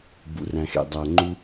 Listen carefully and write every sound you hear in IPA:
bṵ˨ræ̃˨xḛ˨ dˤæ˨ŋ͡ǃu˦

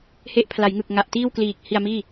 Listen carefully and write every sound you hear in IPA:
he˦˥ʔpʰla˩˦jŋɯ˨˩k̚ŋa˨˩ʔ tiː˥˩wkliː˨˩k̚ hi˧a̯miː˥˩

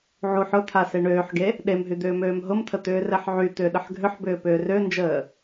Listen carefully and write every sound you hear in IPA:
ʕuħ ʊ t̪ʰaseɳøːħɡe | ɗemɦy d̪ʏːmøːmɦʊmt̪ʰə t̪ʏːrɛħʕyt̪ʏː ɗəħɡʱʏħbʏː pʏːrønd͡ʒəː

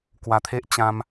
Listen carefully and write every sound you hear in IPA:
kwa˧t̪ʰe˦ʔ t͡ɕã˧m

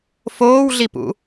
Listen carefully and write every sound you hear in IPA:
foːwɮipṵ

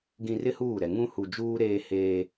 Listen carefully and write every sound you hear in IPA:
ɡĩ˨rɪ˦ huː˦˨ɾɛ˨ ŋũ˦hu˨ d͡ʒuː˦ɾeː˦heː˦

